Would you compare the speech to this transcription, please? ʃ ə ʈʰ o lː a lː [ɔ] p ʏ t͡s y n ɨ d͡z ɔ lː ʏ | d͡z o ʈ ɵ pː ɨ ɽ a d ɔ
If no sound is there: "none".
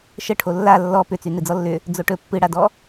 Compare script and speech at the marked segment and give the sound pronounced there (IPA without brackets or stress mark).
ɔ